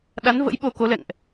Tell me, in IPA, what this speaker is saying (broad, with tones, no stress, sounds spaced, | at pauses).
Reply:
ɗ a˨˦ n v ə̰˧˥ j ɓ o˧ k o˨˦ l ɛ̰˧˨ ŋ ʔ